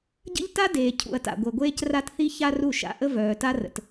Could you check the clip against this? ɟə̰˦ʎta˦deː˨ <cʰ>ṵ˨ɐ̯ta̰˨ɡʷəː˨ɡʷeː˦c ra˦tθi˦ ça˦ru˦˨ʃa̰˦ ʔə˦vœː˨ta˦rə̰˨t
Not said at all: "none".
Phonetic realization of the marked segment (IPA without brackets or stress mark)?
cʰ